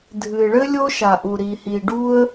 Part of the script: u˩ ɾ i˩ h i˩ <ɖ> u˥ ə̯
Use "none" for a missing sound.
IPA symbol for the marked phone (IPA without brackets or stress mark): ɖ